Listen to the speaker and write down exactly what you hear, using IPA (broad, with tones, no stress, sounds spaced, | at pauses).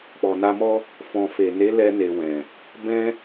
k͡p ɔ˨ n a˧ m ɔ˦ | f ɔ̃˨ f e˨ n e˨˦ l ɛ˧ n e˨ w ɛ̃˨ | b ɛ̃˧